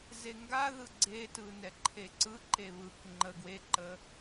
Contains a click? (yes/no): yes